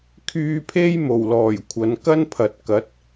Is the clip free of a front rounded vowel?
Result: no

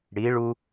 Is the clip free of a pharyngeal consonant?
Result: yes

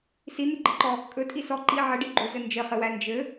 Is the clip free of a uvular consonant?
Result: no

